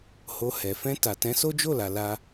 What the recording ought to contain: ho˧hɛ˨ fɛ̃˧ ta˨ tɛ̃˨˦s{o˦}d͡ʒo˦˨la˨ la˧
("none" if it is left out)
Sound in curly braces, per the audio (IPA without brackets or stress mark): o˦